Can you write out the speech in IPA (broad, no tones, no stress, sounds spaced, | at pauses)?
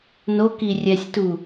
n o k i rʲ ɛ sʲ t u